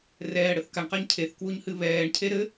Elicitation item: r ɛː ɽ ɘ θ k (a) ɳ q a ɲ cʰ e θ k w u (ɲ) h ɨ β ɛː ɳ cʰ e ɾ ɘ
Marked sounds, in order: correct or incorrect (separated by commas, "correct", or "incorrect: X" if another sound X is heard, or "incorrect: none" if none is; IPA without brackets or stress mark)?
correct, correct